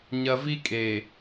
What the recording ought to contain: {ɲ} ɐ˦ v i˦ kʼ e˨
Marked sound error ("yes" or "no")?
no